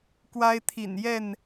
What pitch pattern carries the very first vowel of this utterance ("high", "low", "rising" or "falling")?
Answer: high